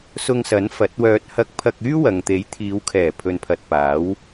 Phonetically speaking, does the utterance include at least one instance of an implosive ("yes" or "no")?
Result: no